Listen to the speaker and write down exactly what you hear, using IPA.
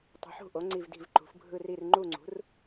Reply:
tˤṳ˩˥ħṳ˦˨ʔo˩˥ ŋ͡ǀi˦˨vdi̤˦˨vǃṳ˩˥f bʱɯ˦˨ri˦˨r ŋ͡ǃu˦˨ŋ͡ǀṳ˩˥r

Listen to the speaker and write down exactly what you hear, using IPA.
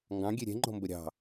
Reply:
ŋɡɑ̃ɡʲe ɾʲɛ̤ŋ͡ǃɔ̤mbə ɾʲɑ̤

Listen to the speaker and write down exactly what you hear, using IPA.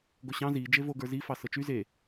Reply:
ɡoɕɑ̃ zi d͡ʒevo ɡə˞zi fɑsɤt͡ʃy ze

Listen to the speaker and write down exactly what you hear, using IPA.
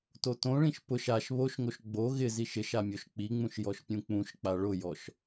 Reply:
totõɭĩʃ pʊʃ aʃ βoʃŋoʃ ɡ͡bo ɣɪziʃ ɪʃa mʲoʃk͡piŋ͡mũʃ jɔʃpʲũk͡pũʃk͡pa ɭʊjɔʃ

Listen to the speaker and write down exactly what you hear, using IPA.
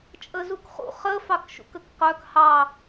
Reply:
t͡ʃʼəzukχṵ χə fɑkʃṵkəkqœk hɑ

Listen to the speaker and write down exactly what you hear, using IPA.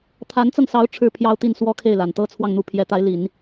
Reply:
t̪ʰa˧˥nt͡sɤ˧ŋsɑ˧˥ʊ̯ ʈ͡ʂʰɻ̩˥˩ pʰjɑ˥ʊ̯t̪i˥˩n swɔ˥kʰe˥˩ɪ̯la˨˩n t̪ɤ˥ t͡sʰwɑ˥˩ŋn̪u˧˥pʰjɛ˧˥t̪a˧˥ɪ̯ li˨˩˦n

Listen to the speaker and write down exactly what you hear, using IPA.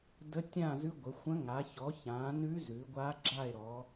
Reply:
də˦˥tʲã˥˧zʉ˦˥ ɡʷə˨˦xʷə̃˦˥ ŋa˨˦çɔ˨˦ çã˨˦nʉ˦˥ zʉ˨˦ɡʷa˦˥ ɡ͡ǁa˥˧e̯ɾɔ˨˦

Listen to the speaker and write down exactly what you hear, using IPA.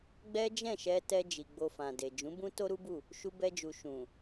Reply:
ɡ͡bɛ˦ d͡ʒɛ̃˦˨ʃɛ˧tɛ˧ d͡ʒi˨ɡ͡bo˧fã˨ de˨d͡ʒũ˨˦ bũ˦to˦ɾu˦bu˦˨ | ʃu˧bɛ˧d͡ʒu˨ ʃũ˨

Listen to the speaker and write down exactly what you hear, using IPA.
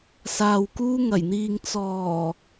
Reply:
saː˨wkuː˧ŋɐ˨˩jn̪iː˨ŋ t͡sɔː˨˩

